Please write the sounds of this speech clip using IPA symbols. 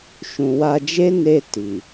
ʃũ˨wa˧ d͡ʒe˦ ne˧ ti˨

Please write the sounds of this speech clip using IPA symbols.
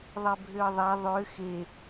ðˤɛbʱøə̯ðˤa ðˤø xe

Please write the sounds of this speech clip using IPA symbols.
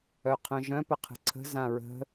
œqʰœ̃ʒœ̃ pəqʰə̤ǀʰə̤ zãɹə̤

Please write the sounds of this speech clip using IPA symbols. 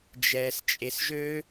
d͡ʒɛːst͡ʃʼesʒø

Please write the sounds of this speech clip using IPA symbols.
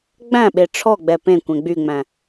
ɡ͡bæ̃ɓe ʈ͡ʂʰɔɡ͡bɛ pẽ kʷɛ̃ɡ͡byŋ͡mæ̃

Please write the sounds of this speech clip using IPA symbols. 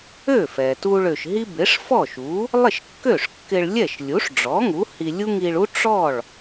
ø˥˩fɛ˩ tu˧ɭ ø˩ʃɦi˥ bɪ˩˥ʂfɔ˥˩ʃu˩˥ | lˠɪ˥˩ʃkːø˥˩ʂkːɪ˧ɭ lʲɛ˥˩ʃlʲu˩˥ʂɖ͡ʐɔ˩˥ ŋu˩˥hi˧lʲu˥ ŋi˧ɭu˥ ʈ͡ʂɔ˥˩ɭ

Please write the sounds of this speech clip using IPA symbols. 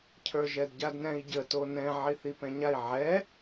cʰə˞ʒɛdɟadnɛ̃i̯ ɟə tonɛ̃ ʕiθipɛ̃ɲai̯ ʕɛ

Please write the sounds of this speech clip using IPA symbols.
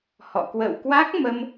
hɔ̰˧˨ kwə̰˧˨wkwa˦˥k̚mə˧m

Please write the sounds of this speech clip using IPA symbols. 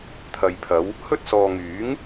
t̪ʰɐ˨jpʰɐ˨˧w | hɵ˧t̚ sɔː˨ŋyː˨˥ŋ

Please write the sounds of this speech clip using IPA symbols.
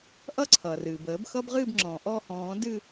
ʔʌ˦ ǀʰʌː˩rɨː˩b əː˨˩˦bxʌ˦b ʁɨː˦˨bŋ͡ǁɔ̃ː˩ ʔɔ˦˨hɔ̃ː˨˩˦ dɨ˦˨

